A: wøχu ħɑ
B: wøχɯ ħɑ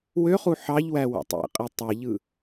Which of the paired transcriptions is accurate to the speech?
A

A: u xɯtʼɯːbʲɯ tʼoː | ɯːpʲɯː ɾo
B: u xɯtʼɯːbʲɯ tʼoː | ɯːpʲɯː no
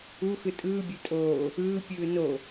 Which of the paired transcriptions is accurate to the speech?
B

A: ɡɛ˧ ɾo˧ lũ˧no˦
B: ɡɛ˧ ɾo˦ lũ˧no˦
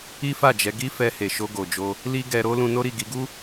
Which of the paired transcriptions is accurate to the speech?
B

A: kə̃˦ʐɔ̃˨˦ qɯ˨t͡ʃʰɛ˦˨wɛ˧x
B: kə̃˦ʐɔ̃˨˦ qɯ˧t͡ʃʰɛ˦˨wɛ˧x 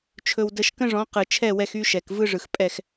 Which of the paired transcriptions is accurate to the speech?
A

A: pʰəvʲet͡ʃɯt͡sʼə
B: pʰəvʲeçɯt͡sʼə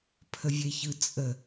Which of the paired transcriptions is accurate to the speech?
B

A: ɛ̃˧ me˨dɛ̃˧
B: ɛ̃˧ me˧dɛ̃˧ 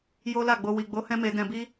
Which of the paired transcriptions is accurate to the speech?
B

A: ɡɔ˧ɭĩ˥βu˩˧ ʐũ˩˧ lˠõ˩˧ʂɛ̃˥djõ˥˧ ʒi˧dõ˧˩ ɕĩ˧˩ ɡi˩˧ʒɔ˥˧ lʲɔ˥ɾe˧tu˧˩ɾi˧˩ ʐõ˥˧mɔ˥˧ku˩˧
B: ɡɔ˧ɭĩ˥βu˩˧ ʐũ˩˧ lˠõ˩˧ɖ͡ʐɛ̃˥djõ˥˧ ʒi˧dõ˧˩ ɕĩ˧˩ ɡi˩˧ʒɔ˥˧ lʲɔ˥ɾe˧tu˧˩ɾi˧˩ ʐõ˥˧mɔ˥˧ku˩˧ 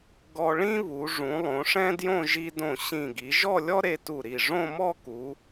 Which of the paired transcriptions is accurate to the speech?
A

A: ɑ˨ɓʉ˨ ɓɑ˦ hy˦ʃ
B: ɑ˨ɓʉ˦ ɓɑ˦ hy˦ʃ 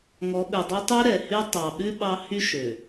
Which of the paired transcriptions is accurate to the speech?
B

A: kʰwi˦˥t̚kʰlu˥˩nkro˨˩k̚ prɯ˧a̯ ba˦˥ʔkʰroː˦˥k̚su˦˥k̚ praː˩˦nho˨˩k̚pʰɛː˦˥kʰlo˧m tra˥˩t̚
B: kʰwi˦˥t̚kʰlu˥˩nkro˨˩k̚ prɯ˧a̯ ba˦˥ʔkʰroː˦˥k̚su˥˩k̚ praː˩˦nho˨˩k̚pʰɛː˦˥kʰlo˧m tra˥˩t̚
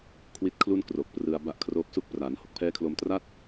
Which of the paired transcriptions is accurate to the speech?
B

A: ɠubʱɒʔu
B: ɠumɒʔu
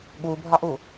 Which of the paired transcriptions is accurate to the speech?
A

